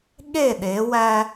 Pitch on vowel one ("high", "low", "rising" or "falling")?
falling